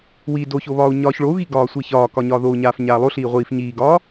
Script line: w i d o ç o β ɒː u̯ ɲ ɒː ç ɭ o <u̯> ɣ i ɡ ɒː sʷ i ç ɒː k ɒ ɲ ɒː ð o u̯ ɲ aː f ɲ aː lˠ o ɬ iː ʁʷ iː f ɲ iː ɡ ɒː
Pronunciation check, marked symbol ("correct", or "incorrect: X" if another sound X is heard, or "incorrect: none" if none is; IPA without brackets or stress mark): correct